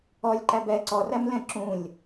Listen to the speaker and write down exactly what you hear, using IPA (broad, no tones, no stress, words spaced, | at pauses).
ɔlʲǃæ bɛ ǀɔræmlɛ̃ ǁũlʲ